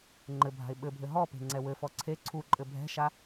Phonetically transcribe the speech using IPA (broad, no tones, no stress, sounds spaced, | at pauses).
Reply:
ŋ͡ǃ ɘ bʱ a̤ ɪ̯ ɓ ɘ bʱ ɘ ɦ ɔ p e̤ ŋ͡ǀ ɛ w ɘ f ɔ ǀʰ e ǀʰ u ǃʼ ɘ bʱ ɛ̤ ʃ a